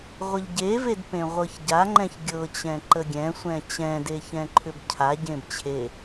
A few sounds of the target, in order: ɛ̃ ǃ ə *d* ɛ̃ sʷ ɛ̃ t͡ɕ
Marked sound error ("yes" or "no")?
yes